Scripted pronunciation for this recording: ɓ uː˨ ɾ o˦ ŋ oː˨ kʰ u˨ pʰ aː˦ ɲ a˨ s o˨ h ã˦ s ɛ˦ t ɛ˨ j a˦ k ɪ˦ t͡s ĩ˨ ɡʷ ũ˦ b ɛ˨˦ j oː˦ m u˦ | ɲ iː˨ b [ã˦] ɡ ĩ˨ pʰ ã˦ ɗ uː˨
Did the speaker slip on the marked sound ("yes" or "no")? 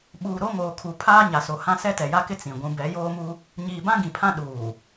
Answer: no